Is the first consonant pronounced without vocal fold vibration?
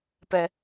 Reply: yes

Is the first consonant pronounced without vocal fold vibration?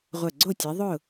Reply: no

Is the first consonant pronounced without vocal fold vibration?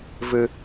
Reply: no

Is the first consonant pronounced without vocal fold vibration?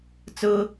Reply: yes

